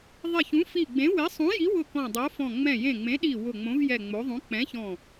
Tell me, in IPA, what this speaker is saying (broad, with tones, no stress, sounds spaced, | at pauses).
ðˤ ɪ˧˩ ç ũ˨˥ f i˧˩ ɡ͡b ẽ˨˥ w ɪ˨˥ sˤ ũ˨˥ j i˨˥ w ʊ˧˩ k ɔ̃˧˩ dˤ o˨˥ f ɔ̃˧˩ ŋ͡m ɛ̃˧˩ j ẽ˧˩ ŋ͡m ẽ˨˥ ɗ i˧˩ w ʊ˧˩ ŋ͡m õ˨˥ v j ɛ˧˩ ŋ͡m o˨˥ ðˤ ũ˨˥ k͡p ɛ̃˨˥ ç ɔ̃˧˩